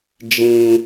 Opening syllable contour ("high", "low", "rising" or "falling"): low